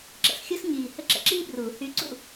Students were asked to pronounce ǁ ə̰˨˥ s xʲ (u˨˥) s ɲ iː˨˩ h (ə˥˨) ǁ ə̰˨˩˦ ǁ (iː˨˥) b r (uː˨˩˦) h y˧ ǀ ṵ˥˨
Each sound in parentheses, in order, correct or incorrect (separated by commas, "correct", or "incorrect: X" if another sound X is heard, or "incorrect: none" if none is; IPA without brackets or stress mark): incorrect: u˥, correct, incorrect: iː˥, correct